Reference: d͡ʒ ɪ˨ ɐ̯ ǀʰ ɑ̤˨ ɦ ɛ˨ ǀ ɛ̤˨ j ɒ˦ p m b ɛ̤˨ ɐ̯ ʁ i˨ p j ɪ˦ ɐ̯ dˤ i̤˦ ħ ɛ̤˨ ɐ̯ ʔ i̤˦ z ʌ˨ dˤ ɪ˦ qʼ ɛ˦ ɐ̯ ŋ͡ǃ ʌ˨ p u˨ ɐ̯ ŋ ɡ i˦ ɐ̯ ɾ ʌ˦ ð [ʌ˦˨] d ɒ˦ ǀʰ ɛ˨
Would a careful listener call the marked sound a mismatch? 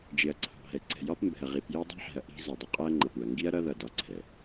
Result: no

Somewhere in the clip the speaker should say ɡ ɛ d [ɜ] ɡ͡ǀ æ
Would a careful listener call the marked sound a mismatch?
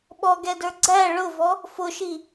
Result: yes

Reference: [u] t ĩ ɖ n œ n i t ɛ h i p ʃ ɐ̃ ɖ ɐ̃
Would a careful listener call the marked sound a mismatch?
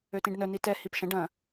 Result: yes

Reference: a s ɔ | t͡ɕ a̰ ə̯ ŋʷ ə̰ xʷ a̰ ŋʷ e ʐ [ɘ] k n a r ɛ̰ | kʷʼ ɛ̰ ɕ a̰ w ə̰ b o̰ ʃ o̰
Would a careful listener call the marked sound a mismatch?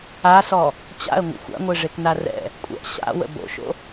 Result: yes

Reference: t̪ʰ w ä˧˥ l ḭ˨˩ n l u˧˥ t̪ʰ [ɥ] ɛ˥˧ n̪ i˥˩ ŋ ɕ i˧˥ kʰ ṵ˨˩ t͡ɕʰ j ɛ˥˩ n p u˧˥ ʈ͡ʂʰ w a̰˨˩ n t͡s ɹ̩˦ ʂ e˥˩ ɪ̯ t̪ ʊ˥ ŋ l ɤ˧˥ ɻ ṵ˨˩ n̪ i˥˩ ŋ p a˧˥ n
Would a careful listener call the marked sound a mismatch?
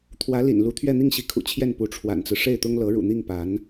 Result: no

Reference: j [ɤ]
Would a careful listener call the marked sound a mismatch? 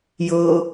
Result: no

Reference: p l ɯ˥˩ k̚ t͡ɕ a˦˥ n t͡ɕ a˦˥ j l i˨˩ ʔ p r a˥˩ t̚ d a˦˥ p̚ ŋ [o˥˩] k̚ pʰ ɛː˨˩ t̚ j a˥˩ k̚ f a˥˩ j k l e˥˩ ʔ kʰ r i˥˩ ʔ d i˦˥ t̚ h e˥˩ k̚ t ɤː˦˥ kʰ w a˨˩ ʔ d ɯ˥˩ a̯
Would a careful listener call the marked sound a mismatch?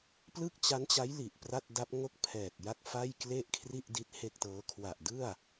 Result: no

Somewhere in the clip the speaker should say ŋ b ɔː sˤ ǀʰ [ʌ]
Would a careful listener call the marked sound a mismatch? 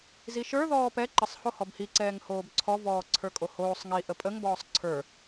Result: yes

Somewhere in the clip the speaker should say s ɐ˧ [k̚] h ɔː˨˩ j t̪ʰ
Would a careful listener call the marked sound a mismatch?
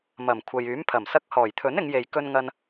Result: no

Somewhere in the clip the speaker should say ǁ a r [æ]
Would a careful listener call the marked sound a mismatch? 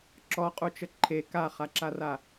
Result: yes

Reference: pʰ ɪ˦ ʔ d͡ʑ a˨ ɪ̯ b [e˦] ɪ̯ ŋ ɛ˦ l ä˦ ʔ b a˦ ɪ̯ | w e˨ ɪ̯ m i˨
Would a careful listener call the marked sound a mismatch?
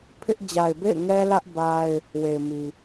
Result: yes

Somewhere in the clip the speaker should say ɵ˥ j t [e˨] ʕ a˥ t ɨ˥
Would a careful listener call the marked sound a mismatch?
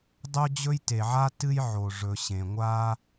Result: no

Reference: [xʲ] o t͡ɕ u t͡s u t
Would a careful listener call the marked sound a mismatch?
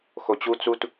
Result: yes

